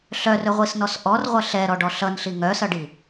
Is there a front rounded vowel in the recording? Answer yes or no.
yes